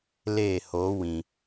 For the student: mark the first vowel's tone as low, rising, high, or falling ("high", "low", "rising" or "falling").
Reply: falling